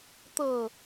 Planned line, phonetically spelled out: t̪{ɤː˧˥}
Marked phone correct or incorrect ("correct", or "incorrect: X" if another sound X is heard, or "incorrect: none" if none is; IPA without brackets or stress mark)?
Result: incorrect: ɤː˧˩